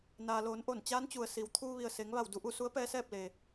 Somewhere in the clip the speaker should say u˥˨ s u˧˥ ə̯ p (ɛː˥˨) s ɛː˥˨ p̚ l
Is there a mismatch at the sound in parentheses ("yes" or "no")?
yes